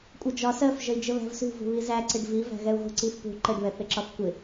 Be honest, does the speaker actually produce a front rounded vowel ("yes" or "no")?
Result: no